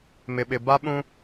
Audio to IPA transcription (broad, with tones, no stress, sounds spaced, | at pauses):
m ɪ˨ ɓ ɪ˨ b a˦ ɓ ũ˦